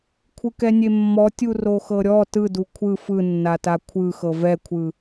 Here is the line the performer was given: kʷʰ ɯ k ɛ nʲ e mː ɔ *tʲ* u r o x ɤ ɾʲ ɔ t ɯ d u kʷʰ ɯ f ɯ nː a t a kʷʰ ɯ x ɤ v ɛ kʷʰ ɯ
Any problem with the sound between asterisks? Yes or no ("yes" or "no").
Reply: no